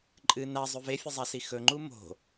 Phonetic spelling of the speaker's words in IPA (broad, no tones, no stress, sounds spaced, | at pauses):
ǃʼ ɨ n a zˤ ʉ v e fʲ ɨ zˤ a s i x ɵ ŋ͡ǃ u m o̤